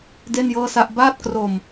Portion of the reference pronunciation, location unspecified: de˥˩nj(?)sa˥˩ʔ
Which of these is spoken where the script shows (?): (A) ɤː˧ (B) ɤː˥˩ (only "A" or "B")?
B